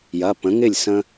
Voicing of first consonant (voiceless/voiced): voiced